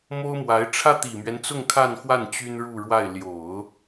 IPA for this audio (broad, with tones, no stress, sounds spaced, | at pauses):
m o˥ ʊ̯ m w a˧˥ ɪ̯ ʈ͡ʂʰ ä˥ t̪ i˨˩ m ɥ ɛ˦ n t͡s ʊ˥˧ ŋ kʰ a˥˧ n x w a˥˩ n t͡ɕ y˥ n ɻ u˥˧ ɻ w a˥˩ ɪ̯ l j o˨˩˦ ʊ̯